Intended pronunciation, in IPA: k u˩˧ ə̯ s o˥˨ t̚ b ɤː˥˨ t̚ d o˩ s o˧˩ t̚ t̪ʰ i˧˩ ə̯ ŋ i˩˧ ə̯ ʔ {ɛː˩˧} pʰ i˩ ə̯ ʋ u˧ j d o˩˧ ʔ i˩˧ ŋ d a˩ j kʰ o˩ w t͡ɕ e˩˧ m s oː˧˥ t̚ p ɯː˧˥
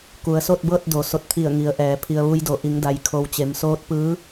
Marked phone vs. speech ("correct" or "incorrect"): correct